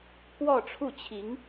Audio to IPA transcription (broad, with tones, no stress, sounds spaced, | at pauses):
k w ɔ˥˧ ʈ͡ʂʰ u˥˩ t͡ɕʰ i˧˥ ŋ